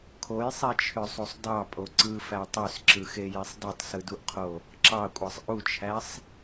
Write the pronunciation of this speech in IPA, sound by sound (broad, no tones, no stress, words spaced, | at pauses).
kʰojsˤit͡ʃʰøsˤusˤ dɑpʼo ǀɯfæ tˤøsǁɯxejesˤ dɯtˤsɯduʔqʰo | ǁɑkʷʼɑsˤ ʔut͡ʃʰæsˤ